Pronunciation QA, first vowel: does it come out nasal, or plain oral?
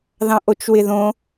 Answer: nasal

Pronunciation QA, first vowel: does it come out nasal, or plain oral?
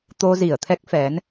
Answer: oral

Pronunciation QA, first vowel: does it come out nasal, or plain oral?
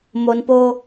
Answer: oral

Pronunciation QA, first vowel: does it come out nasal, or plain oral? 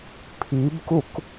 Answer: oral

